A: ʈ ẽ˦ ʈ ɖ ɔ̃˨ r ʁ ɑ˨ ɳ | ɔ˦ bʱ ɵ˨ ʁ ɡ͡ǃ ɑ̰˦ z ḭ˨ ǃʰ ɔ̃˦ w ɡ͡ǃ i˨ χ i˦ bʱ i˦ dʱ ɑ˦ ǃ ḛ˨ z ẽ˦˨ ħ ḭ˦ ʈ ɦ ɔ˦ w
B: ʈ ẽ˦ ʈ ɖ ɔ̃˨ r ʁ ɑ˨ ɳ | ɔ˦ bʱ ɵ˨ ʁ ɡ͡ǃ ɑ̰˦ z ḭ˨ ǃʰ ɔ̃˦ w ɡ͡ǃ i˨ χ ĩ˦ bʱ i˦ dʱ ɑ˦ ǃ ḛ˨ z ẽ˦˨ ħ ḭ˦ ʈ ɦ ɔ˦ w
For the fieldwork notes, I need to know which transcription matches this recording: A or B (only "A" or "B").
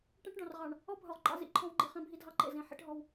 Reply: B